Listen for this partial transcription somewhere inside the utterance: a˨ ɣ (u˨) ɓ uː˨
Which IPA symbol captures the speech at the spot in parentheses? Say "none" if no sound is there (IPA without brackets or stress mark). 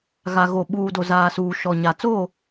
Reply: o˨